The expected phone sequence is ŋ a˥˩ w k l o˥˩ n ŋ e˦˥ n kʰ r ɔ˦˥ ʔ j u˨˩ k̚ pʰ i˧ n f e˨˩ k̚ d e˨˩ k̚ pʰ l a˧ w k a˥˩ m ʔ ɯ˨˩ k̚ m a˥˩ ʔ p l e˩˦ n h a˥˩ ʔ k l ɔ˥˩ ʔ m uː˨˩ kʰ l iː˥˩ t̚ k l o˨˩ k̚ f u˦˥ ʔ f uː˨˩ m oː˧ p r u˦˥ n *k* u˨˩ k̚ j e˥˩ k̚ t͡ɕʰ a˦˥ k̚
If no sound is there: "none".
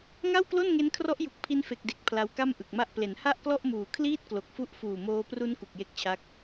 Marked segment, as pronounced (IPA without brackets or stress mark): k